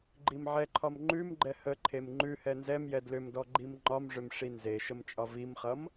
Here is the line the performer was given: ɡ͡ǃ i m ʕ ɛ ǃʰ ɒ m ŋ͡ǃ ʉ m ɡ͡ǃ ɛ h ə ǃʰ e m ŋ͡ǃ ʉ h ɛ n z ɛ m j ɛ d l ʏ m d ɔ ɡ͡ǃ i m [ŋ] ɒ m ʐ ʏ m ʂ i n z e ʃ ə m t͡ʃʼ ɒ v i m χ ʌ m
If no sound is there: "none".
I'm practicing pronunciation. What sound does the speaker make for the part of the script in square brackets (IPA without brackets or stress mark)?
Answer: ŋ͡ǃ